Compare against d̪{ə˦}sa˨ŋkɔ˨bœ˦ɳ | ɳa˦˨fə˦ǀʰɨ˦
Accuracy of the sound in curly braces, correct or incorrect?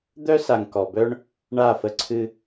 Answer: incorrect